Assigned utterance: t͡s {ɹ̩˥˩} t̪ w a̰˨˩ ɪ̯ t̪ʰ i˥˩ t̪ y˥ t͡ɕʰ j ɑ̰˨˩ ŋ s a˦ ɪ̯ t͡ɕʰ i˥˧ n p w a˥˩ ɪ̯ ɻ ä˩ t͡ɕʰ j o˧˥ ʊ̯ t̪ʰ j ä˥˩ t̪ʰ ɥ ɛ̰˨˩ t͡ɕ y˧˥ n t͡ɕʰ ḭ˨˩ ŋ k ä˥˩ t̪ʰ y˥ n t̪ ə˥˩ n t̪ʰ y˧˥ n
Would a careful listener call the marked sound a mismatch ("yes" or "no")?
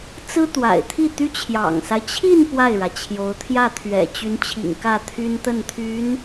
yes